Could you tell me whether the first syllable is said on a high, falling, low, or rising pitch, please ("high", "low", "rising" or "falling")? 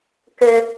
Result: high